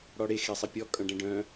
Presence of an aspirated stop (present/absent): absent